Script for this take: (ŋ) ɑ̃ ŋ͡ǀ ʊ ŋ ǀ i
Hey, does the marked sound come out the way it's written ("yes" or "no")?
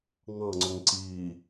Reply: yes